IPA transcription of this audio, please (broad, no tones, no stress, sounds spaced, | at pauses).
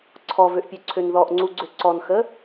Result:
ǀʰ ɔ v ø ʔ pʲ ø ǀʰ ø n ð ɔ ʔ ŋ͡ǀ u ɡ͡ǀ ø ǀ ɔ n x ə